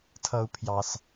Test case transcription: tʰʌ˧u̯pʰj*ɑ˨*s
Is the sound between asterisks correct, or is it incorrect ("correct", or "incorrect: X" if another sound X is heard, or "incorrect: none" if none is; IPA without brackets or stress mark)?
correct